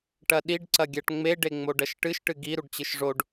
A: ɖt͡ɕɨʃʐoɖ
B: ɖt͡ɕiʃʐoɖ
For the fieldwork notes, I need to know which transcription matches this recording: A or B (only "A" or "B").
A